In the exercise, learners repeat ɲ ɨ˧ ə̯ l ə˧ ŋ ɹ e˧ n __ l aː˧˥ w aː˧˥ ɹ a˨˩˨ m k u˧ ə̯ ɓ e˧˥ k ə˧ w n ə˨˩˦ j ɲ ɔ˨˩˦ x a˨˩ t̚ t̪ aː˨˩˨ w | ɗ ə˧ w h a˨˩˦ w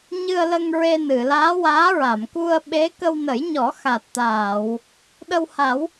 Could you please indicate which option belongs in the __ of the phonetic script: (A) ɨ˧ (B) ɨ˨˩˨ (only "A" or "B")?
B